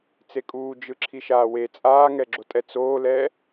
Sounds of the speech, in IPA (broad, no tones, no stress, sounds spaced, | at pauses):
t͡s e kʼ uː d͡ʒ ɯ ǁʰ i ʃ aː w e t͡sʼ aː ŋ ɛ ɡ͡ǁ o tʼ ɛ t͡s oː l ɛː